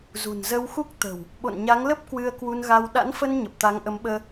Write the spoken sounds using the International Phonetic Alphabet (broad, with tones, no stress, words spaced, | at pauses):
zṳ˨˩nzə˧wxu˦˥k̚ t̪ə̤˨˩w | ɓo̰˧˨nɲa˨˦ŋlə˦˥p̚ kwɨ˧ə̯kwu˧nɣa˧w ɗa̰˧˥nfə˧n ɲə˨˩p̚t̪a˨˦ŋʔə˨˦mɓəː˧